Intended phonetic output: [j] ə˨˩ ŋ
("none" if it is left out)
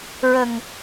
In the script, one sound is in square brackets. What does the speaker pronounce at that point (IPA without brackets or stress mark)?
ɹ